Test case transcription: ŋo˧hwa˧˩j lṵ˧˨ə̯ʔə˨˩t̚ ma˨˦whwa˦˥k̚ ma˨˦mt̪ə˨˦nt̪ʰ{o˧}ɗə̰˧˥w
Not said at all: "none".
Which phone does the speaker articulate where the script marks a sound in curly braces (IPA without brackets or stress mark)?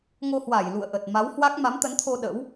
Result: o˧